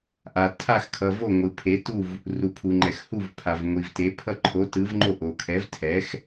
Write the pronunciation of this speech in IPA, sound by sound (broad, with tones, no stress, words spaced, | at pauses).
ʔa˩ tʰa˥˩xkʰʌ˩vo˥˩ ŋʷɯ˩pʰe˩˥ tu˥˩v | ru˩pʰu˩ŋ͡ǃɛ˩x hu˥˩v pʰa˩vŋʷi˩vte˩˥ pʰʌ˥˩ǃʰo˩˥tɯ˩˥vŋ͡ǃo˥˩ ʔo˩kʰɛ˩˥vtʰɛ˩˥x